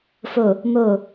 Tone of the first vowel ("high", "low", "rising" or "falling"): low